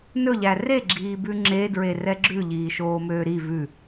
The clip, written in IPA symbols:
n ɵ ʎ æ r e ɡ͡ǁ iː b ʉ ŋ͡ǁ e d ɹ e r ɛ ɡ͡ǁ ʉ ʎ iː ʃ oː m øː ɾ i v ʉ

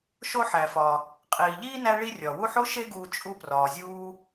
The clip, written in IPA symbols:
ʃ o˥ ħ æ˩ f ɒ˩ | qʼ iː˩ ʎ iː˥ n æ˦ ɭ i˦ rʲ ɒ˩ w u˦ ħ o˥ ʃ e˦ ɡ uː˨ t͡ʃʼ u˦ p r ɒː˩ zʲ uː˦

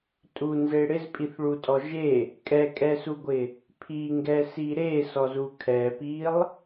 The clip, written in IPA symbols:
tʼ u n z e ɽ ɪ z pʼ i θ ɭ u tʼ ɔ ʒ e | kʼ ɛ kʼ ɛ s u ɡʷ ɪ | pʰ i ŋ ɡ ɛ s i ɾ e s ɔ z u kʰ ɛ p i lˠ

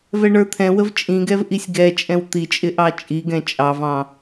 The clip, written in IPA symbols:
v ɛ ɳ ə˞ t̪ʰ ɛ̃ w ə v t͡ʃʼ ĩ ɡ ɛ v ʔ i sʲ ɡ ɛ t͡ʃʼ ɛ̃ w t̪ i t͡ʃʼ ɪ ʔ ɑ t͡ʃʼ i ɡ ɛ̃ t͡ʃʼ ɑ v ɑ̃

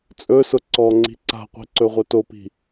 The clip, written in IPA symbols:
t͡sʼ ɵ s ʊ ǀ ɔ ŋ͡ǀ i̤ ǀ a̤ qʷ i̤ ǀ ɵ ʁʷ œ t o p i̤

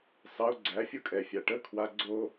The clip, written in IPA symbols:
s ɑ ʊ̯ ɡ͡ǀ æ fʲ o kʼ ɛ fʲ a ʈ ə kʰ w a ɡ͡ǀ o

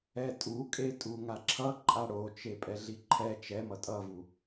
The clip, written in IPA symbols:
ɛ tʼ u kʼ e tʼ u ŋ a ǁʰ ʌ ǃʼ a ɽ o t͡ʃ e pʼ ɛ ɮ i ǃʰ ɛ t͡ʃ ɛ m ʌ tʼ ʌ v u

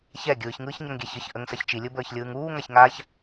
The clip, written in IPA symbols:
ç ɛ ɡʲ ɯː ç ŋ ɯː ç ɲ ɐ ŋ ɡʲ ɛ ç ə ç ʔ ə ŋ s ɐ ç t͡ʃ i lʲ ɯ b əː ç lʲ ɯː ŋ uː ŋ a ç ŋ aː ç

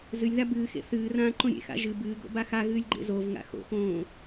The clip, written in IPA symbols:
z ɨ lʲ ð a b ɨː x ḛ θ ɨː r ãː ǃ õ ɾʲ ḛ x a̰ ʒ ɨ b ɨː ɡ o̰ b a x a ɣ ɨː lʲ ɡ͡ǃ ḛ z o v ŋ a̰ x o̰ x õː

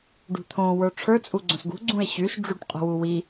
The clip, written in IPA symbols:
ɖ ṳ t̪ʰ õ w ə˞ ʈ͡ʂʰ ə˞ t͡sʼ u ɡ͡ǀ õ s ɡ ṳ ɡ͡ǀ ũ e̯ ɕ y s ɖ͡ʐ y ʈ qʼ o̤ w u w i

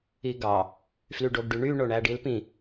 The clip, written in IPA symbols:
i ɡ ɑ | f l y ɖ o ɡ ɖ y ɳ y ɳ o ɳ æ ɖ i l p ĩ

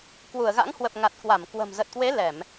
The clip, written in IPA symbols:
k w u˧˩ ə̯ ɣ a̰˧˥ ŋ h w ə˨˩ p̚ ŋ a˨˩ t̚ k w a˧˩ m k w ə̤˨˩ m z ə˨˩ t̚ k w e˨˦ l ɛ˧˩˨ m

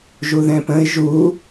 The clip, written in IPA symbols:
ʒ u ð ɛ̃ p ə̃ ɪ̯ ʒ u

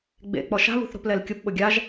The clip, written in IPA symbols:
ɡ͡b ḛ k͡p ɔ ʃ a̤ β ṳ θ ɾ o̤ p l ɛ l kʲ ʊ p ɓ ʊ ɡʲ a ʒ

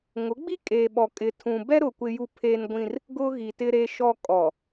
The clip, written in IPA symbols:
ŋ ʊ˨˦ ɡ͡b i˦ kʼ eː˨ ɓ ɔ˨ kʼ ɪ˨ tʰ ũ˨ b ɛ˦ ɾ ʊ˨ kʷ ɪ˦ j u˦ pʰ eː˦ n ɡʷ ĩ˦ r | ɡ ʊ˦ ɣ i˨ t ɪ˦ ɾ e˦ ʃ ɔ˦ kʼ ɔ˨

